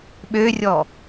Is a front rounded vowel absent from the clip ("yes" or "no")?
no